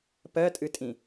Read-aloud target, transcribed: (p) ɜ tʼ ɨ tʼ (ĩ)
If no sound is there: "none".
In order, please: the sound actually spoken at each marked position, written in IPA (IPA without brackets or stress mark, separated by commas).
p, ĩ